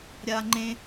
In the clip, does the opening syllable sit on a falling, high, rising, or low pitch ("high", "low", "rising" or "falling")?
high